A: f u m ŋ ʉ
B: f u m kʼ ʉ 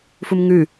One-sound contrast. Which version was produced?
A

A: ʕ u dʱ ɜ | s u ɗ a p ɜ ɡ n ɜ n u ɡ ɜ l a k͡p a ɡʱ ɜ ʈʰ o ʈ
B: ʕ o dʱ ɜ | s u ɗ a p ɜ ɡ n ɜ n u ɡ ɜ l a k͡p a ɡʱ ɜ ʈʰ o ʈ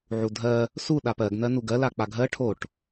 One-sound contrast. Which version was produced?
A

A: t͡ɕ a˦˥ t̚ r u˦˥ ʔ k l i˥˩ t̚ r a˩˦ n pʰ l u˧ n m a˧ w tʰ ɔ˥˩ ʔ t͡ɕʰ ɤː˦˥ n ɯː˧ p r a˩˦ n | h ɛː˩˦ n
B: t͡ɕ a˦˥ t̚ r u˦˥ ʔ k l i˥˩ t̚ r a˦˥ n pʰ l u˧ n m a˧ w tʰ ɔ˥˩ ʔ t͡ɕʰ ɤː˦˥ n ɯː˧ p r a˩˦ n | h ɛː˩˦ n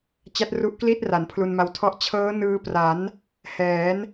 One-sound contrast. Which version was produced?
A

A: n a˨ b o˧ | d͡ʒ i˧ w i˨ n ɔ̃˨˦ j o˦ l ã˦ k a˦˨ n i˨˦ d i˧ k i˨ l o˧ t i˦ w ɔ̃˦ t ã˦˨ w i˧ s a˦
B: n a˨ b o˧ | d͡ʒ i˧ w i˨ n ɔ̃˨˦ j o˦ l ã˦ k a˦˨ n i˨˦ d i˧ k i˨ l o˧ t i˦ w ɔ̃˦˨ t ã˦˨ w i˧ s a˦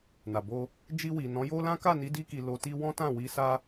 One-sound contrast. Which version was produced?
A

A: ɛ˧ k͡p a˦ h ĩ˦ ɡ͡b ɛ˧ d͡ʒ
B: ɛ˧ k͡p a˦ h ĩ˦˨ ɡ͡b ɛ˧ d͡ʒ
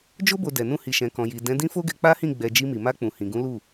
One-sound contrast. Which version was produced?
B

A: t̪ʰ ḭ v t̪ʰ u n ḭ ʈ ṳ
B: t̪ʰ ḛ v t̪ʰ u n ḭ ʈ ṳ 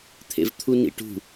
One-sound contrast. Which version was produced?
B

